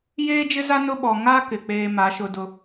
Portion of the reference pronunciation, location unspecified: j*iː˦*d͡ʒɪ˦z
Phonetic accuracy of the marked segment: incorrect: eː˦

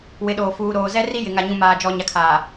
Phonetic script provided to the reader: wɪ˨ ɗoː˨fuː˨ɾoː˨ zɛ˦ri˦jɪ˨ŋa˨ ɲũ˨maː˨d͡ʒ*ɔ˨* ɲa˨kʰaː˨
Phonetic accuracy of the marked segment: correct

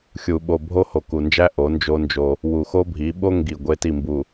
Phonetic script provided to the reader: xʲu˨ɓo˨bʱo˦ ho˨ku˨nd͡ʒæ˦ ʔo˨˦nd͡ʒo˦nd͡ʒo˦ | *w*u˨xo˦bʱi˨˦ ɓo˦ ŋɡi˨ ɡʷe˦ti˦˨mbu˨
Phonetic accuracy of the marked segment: correct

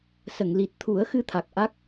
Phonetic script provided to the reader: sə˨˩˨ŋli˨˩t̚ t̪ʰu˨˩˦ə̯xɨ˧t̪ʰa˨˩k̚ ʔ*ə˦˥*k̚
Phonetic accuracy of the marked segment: incorrect: a˦˥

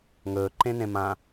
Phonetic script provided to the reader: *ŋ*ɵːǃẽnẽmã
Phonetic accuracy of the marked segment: correct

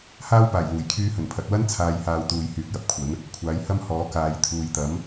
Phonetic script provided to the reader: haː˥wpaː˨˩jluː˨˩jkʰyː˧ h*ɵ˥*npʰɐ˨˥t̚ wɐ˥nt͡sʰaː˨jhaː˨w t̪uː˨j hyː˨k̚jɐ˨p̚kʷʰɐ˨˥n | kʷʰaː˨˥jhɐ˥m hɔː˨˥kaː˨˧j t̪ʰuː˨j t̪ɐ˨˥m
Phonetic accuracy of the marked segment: incorrect: ɵ˨˩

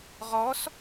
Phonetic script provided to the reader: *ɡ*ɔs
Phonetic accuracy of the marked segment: incorrect: ʁ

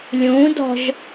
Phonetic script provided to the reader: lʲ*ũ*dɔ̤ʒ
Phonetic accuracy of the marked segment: correct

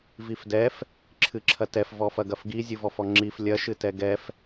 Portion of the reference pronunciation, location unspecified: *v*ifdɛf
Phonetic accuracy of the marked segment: correct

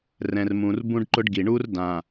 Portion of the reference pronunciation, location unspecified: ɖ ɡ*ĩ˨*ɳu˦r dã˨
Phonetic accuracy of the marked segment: incorrect: i˨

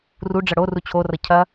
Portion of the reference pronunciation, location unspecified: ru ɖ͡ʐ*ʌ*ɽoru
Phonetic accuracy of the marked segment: correct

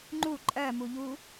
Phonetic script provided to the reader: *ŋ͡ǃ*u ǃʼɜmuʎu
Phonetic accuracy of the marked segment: correct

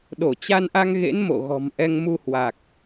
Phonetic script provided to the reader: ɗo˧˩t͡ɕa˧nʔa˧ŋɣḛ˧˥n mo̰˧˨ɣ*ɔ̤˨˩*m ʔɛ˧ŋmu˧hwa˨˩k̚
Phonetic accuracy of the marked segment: correct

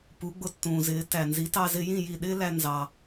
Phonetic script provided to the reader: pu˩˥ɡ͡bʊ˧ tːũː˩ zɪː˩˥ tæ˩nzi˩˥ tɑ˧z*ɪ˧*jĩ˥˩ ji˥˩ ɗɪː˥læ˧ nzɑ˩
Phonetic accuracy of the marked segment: correct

